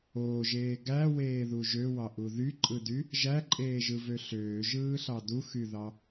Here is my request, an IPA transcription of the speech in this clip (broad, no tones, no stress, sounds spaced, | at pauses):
oː ʒ eː ɡ æ w eː ð u ʒ ø w ɑ ʔ u ð y ǃʼ ɯ d y | ʒ æ ǃʼ eː ʒ ɯ v ø ɬ øː ʒ ɯː ɬ ɑ d u x y ð ɑ